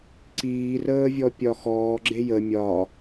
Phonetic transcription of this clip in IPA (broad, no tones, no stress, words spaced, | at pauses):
ǀiːrəː vʲɔpʲɒxɔː ɡ͡ǁejə mʲɒ